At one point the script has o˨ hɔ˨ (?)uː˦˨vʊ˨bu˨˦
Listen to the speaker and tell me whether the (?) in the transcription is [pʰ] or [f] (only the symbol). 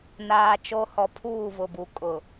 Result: pʰ